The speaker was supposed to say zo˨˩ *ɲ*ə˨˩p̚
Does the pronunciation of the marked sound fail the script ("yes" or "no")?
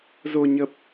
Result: no